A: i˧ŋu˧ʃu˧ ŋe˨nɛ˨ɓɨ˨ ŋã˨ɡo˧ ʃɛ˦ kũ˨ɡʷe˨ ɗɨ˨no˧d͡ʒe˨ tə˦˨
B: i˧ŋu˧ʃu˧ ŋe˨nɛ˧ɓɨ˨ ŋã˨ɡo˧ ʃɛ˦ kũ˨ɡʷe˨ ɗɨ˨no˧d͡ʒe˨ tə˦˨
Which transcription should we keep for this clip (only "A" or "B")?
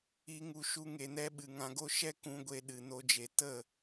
B